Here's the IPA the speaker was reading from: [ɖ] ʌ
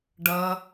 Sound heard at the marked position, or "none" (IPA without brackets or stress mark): ɖ